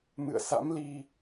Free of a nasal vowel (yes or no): yes